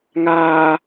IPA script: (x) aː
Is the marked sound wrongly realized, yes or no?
yes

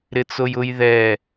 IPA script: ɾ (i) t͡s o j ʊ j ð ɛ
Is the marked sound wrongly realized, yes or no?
yes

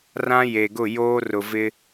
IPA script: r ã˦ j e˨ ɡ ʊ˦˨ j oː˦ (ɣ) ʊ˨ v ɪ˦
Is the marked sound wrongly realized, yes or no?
yes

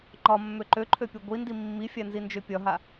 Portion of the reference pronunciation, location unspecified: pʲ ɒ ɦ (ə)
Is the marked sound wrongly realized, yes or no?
yes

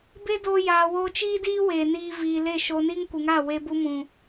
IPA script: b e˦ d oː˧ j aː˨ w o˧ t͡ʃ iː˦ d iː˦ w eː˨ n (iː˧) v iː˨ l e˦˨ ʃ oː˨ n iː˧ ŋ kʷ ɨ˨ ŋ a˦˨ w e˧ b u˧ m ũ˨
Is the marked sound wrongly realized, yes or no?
no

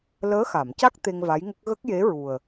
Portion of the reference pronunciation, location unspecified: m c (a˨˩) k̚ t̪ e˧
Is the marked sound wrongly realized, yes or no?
yes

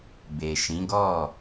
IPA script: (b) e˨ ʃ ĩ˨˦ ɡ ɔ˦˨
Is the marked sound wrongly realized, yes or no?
no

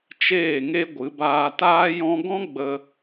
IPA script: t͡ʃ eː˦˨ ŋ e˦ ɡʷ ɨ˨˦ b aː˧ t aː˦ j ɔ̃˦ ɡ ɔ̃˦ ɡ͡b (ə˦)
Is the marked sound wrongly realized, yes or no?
yes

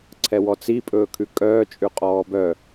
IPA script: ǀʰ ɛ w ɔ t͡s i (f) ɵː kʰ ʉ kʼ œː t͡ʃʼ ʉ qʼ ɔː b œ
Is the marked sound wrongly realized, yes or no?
yes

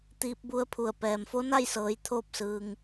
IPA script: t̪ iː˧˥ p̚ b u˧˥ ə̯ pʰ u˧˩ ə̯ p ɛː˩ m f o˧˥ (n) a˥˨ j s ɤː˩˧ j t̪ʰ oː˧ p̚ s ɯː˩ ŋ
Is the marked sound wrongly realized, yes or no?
no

